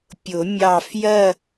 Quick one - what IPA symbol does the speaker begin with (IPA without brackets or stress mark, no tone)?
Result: pʲ